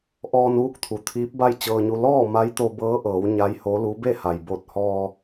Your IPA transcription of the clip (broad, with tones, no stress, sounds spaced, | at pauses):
ʔ ɔː˧ n ʋ u˥˨ k̚ t̪ʰ u˩˧ t̪ʰ iː˧˥ p̚ b a˥˨ j t͡ɕ ɤː˧ ɲ u˧ l ɔː˥˨ m a˧˥ j t̪ o˧ b ɤː˧˥ ʔ ɤː˩˧ w ɲ a˧˥ j h o˧˥ l u˧˥ b e˥˨ h a˩ j b o˧˩ t̚ h ɔː˧